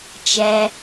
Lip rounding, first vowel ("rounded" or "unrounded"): unrounded